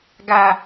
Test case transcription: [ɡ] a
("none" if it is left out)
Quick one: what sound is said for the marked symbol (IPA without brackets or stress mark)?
ɡ